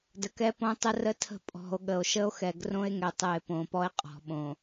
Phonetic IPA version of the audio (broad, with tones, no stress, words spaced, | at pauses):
də˨kɛ˦põ˦tˤə˦ rə˦tʰə̤˦˨ pʼɔ̤˨o̯ɠə˨o̯ ʃə˦o̯xɛ˨ɡrõ˦e̯ŋɛ˨ tˤɘ˨e̯ põ˨pɔ˦e̯ qʼɔ̤˨ɓõ˨